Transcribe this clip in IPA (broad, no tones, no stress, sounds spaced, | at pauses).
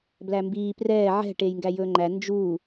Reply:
b l æ m b iː p r ɛː ʕ ɛ̤ ʈ eː j ŋ ɡ æ j ɵː ŋ͡ǃ æ n d͡ʒ uː